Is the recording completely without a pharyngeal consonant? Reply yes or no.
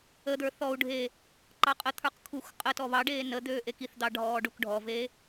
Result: yes